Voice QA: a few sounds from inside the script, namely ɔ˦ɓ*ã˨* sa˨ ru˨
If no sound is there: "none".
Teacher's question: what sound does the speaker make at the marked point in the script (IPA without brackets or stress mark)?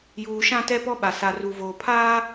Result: a˨